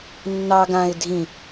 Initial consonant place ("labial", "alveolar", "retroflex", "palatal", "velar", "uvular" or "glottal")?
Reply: alveolar